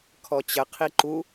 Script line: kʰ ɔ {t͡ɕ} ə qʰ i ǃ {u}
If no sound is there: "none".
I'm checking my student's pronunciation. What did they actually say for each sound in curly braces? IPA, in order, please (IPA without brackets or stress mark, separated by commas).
t͡ɕ, u